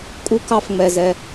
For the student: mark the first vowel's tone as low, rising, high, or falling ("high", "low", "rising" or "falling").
high